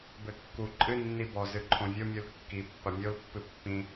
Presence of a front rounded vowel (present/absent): absent